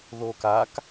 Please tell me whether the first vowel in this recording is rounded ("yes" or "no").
yes